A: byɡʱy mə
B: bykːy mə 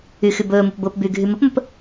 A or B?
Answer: A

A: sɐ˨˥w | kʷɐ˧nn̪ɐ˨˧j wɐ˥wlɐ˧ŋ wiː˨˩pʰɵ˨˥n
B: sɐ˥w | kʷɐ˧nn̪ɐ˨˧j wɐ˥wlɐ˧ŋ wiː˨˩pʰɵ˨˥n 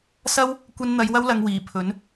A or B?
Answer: B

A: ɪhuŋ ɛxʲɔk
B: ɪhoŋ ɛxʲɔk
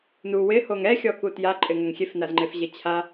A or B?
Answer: B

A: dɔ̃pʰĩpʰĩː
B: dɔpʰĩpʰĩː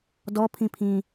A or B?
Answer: B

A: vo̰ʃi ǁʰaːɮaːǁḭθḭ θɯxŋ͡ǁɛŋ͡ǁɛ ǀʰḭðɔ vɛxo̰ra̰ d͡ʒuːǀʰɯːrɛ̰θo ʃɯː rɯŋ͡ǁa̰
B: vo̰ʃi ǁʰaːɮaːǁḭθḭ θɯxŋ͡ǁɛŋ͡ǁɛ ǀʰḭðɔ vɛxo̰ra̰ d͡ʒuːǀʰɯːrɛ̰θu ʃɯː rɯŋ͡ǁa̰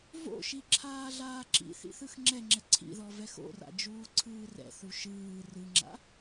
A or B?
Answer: B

